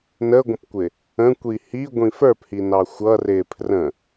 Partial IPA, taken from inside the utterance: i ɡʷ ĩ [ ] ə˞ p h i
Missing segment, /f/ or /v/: f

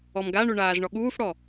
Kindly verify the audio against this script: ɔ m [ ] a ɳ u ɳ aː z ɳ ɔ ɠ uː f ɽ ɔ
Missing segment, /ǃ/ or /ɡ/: ɡ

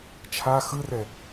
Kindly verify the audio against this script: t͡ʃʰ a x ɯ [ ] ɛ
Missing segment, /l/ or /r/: r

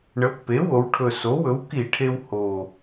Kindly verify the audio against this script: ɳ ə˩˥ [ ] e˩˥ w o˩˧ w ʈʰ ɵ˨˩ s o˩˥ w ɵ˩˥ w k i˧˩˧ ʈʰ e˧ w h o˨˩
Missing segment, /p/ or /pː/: pː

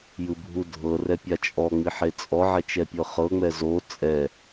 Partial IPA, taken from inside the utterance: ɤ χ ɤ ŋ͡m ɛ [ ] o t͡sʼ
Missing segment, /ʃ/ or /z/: z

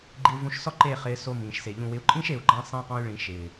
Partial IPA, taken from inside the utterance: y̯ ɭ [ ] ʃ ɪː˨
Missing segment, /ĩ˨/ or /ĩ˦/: ĩ˨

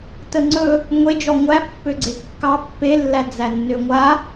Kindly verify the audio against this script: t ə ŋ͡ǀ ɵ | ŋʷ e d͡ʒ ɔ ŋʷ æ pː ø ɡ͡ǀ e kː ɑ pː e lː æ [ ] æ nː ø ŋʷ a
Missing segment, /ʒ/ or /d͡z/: d͡z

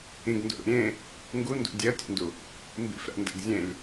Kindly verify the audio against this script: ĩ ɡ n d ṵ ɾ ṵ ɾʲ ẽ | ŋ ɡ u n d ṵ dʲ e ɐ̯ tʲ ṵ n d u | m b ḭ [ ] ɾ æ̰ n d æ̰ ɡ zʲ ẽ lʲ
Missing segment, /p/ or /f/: f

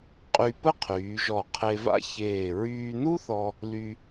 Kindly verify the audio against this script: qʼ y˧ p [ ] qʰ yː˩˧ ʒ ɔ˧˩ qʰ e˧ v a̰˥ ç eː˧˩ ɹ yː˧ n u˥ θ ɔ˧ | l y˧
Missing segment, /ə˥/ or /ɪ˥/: ə˥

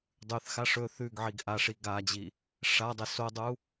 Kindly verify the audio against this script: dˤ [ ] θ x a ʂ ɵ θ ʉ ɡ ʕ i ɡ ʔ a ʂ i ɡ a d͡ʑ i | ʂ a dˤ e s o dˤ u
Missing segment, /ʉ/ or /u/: ʉ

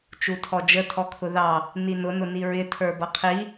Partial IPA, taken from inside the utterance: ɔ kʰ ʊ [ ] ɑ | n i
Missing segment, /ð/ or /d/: ð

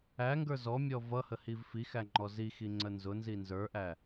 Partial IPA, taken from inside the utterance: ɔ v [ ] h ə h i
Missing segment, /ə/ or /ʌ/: ʌ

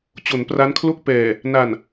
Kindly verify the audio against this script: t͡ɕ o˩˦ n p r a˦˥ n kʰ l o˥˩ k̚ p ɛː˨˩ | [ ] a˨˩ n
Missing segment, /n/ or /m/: n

